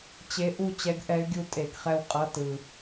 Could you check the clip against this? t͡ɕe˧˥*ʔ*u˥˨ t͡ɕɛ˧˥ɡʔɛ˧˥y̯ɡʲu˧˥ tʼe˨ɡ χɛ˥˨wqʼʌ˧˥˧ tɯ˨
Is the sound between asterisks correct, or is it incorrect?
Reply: correct